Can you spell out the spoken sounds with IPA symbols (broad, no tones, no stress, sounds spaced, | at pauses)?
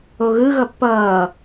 o ɣ ɯ ɣ ʌ pː ʌː